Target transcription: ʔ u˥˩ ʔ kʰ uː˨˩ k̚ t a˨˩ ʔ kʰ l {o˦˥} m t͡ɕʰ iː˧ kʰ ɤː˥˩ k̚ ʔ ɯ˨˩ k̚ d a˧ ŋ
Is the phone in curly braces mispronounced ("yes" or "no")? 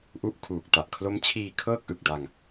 no